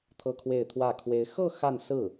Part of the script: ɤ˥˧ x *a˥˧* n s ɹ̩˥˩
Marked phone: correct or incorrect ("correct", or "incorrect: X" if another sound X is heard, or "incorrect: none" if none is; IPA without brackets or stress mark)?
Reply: correct